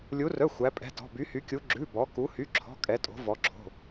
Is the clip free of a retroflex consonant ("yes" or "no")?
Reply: yes